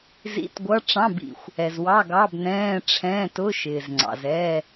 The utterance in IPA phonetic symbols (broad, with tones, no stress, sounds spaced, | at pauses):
z ḭ˧˥˧ t ɡʷ ʌ˧˥˧ ʈ͡ʂ ɑ̃˧˥˧ b ḭ˩ xʷ | ɛ˩ z w ɑ˧˥˧ ɡ ɑ˧˥˧ b n ɛ̃ː˧˥˧ ʈ͡ʂʰ ɛ̃ː˧˥˧ t ʊ˧˥˧ ʃ ɪː˩ z ŋ͡ǀ ɑ̰˩ z ɛ˧˥˧